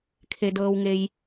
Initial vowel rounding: unrounded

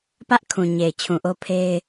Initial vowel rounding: unrounded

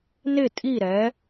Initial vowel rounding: unrounded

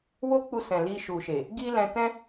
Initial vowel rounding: rounded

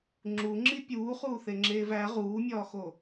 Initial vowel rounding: rounded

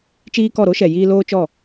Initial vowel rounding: unrounded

